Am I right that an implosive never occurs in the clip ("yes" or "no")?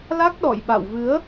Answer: no